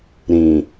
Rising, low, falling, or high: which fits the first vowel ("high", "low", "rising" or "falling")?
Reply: low